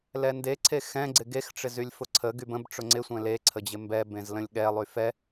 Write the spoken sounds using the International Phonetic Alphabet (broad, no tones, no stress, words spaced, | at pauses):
lɛndeǀʰe xɛ̃ɡ͡ǀɪ ɡexʈ͡ʂɪz ylʲfʊǀʰəɡyb ə̃b ʈ͡ʂʊŋ͡ǀɪsʷɛ̃ le ǀʰəd͡ʑɪmbɛbẽz lə̃lʲɠɛlˠy fɛ